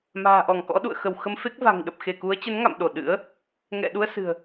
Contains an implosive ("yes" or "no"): yes